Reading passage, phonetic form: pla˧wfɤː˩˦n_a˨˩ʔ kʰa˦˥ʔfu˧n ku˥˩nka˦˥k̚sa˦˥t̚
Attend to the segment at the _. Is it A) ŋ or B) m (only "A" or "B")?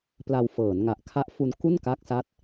A